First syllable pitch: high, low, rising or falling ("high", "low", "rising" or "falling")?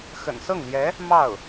low